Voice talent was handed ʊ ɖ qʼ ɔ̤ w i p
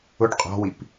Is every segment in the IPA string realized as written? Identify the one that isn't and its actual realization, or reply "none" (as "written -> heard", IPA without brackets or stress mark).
none